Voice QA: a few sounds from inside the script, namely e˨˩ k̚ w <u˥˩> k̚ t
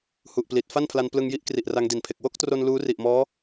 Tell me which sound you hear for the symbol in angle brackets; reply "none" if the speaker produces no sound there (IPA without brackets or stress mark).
o˥˩